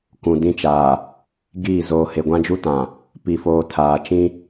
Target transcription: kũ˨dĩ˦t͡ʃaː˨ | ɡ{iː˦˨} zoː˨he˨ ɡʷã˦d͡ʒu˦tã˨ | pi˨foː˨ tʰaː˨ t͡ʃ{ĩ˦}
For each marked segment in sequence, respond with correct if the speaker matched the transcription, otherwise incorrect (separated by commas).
correct, correct